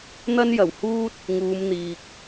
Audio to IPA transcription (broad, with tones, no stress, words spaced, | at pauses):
n̪ɐ˥njɐ˨˩whuː˥t̚ | ŋuː˨˧mn̪iː˨k̚